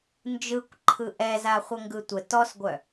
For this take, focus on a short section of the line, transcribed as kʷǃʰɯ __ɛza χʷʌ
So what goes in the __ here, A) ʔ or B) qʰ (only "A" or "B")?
A